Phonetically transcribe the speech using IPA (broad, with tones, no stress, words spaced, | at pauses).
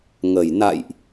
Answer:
ŋə˨˩j na̰˧˨jʔ